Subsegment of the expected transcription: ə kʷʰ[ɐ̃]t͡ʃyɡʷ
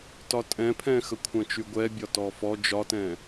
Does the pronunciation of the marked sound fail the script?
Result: no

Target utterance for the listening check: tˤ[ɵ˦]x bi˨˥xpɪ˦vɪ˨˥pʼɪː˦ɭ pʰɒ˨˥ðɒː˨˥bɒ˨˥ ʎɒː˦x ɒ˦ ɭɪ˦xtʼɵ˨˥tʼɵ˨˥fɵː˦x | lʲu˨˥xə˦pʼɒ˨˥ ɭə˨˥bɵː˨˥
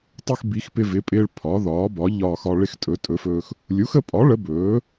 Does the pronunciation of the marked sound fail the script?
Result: no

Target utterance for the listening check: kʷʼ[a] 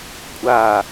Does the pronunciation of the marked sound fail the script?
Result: no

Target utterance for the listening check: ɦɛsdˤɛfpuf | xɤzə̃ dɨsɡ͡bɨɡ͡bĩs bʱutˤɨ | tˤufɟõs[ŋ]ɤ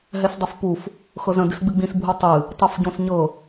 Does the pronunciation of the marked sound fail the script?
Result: yes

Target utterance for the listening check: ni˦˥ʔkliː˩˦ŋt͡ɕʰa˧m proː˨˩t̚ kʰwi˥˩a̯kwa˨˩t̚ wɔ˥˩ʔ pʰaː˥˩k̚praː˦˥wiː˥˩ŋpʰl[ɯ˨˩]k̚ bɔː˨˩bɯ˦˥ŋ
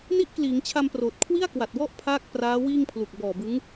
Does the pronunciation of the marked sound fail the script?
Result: yes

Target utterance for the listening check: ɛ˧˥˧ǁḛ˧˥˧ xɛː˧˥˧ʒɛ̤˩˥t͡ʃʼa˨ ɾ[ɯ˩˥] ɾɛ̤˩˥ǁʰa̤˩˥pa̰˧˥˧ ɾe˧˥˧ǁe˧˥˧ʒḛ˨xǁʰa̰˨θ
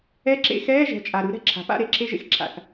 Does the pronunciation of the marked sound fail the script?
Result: no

